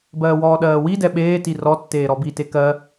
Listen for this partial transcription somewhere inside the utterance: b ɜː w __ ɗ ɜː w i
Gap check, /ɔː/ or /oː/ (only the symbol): ɔː